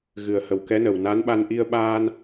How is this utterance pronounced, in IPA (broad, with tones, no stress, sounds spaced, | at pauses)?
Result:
ɣ ɨ˨˩ ə̯ h ə˨˩ w k ɛ˧˥ n ə˨˩ w n a˧˥ n ɓ a˧ n ʔ i˧ ə̯ ɓ aː˧ n